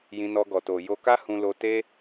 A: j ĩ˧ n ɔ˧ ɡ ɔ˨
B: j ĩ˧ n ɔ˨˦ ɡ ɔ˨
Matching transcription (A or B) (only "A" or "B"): A